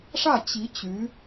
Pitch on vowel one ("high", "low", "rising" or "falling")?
falling